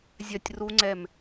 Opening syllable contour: falling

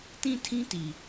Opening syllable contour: falling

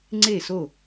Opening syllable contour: falling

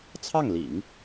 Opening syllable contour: falling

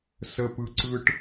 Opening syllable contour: low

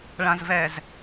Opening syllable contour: low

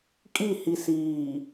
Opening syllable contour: falling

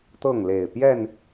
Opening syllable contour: falling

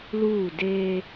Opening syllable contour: falling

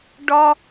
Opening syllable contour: high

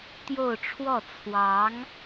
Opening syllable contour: falling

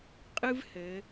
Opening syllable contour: high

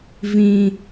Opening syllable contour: high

